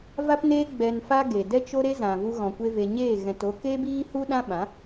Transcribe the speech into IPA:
v a˦ p n eː˦ ɡ͡b ɛ˧ n f a˦ ɡ e˨ d ɛ˦ t͡ʃ o˦ ɾ e˦ z ã˨ v u˧ ɣ ɔ̃˨ kʷ e˧ v e˨ ɲ eː˦˨ ɣ ɛ̃˨ t o˧ k e˦ b iː˦ h u˦ ɗ ã˦ ɓ ã˨˦

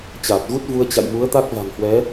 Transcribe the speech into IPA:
t͡ɕ aː˨˩ t̚ ɣ u˦˥ t̚ v u˧ ə̯ t͡ɕ a̰˧˨ j m u˨˦ ə̯ t̪ a˦˥ k̚ v a̤˨˩ ŋ h w ɛ˨˦

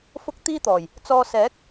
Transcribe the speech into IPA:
f ʊ˥ k̚ t̪ iː˥ t̪ ɔː˨˩ j | t͡s ɔː˧ s ɛː˨˥ k̚

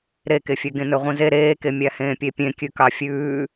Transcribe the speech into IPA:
ɾ e k e fʲ ø ɡ ẽ n ɵ ʁʷ ĩ z e ɾ eː k e mʲ æ h ẽː pʲ e pʲ ẽ kʲ ʉ k ɑ fʲ ʉː

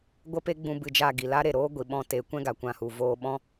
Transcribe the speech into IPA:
ɡʷ ə˦ p e˦ ɡ͡b ũ˧ b ɨ˧ d͡ʒ a˦˨ ɡ i˨ l a˦ ɾ e˨ ɾ oː˦ ɡʷ i˨ ɓ ɔ̃˧ t e˨˦ kʷ ɛ̃˦ ɡ a˨ kʷ ã˧ h u˨ v oː˧ ɓ ɔ̃˦

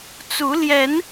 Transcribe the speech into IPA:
t͡s u˨˦ l j ɛ˨˦ n

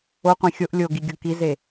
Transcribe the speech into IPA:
o qʷ ẽ xʲ o ʔ lʲ o ɡ i ɡʲ o k i z e

